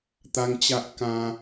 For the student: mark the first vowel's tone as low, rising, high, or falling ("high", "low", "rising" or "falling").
high